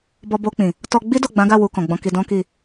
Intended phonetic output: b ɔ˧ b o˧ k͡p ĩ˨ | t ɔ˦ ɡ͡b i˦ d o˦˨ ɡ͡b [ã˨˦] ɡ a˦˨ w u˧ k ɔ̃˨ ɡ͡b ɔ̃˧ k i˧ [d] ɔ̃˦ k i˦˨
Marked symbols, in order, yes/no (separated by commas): yes, yes